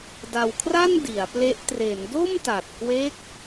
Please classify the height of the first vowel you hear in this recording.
low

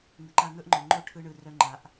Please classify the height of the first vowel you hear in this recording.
high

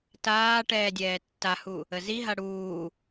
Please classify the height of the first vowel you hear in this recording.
low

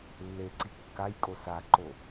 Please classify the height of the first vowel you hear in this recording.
mid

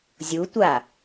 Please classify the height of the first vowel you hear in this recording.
high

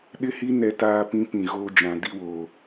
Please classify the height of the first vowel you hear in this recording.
high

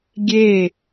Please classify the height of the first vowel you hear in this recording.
mid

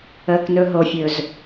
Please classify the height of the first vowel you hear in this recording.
mid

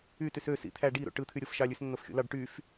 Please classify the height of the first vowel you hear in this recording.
high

